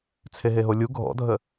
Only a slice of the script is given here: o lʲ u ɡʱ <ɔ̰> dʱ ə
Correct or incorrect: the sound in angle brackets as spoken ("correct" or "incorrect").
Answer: correct